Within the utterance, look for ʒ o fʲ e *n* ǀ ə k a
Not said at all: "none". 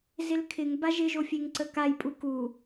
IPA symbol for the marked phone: ŋ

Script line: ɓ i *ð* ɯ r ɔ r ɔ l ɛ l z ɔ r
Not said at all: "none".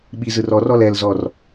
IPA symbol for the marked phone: z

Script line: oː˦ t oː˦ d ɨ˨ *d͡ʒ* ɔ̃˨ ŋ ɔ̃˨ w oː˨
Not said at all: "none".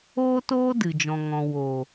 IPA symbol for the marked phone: d͡ʒ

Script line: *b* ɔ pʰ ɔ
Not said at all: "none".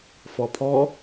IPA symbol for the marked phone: f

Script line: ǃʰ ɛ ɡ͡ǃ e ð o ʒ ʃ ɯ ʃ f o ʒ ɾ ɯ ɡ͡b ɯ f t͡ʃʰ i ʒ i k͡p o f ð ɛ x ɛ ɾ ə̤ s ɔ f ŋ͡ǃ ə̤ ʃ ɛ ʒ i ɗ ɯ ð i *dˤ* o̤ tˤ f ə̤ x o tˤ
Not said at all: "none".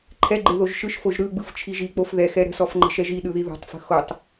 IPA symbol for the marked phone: ð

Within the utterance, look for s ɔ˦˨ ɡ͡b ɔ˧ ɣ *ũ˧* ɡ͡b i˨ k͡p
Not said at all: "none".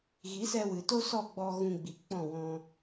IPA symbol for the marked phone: ũ˧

